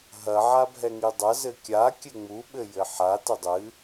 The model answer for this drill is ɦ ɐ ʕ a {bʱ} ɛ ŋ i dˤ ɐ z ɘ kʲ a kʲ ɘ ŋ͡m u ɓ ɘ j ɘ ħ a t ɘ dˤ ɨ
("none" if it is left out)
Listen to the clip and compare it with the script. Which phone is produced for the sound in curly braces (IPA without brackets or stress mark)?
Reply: bʱ